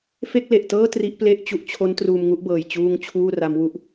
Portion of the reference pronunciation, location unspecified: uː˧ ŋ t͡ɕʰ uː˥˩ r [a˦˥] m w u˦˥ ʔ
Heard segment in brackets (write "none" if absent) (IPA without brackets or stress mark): a˦˥